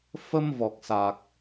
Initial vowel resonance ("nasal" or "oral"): oral